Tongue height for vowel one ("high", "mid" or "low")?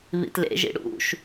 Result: high